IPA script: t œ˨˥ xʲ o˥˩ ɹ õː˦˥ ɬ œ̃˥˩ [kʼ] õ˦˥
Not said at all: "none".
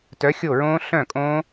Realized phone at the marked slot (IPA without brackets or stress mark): kʼ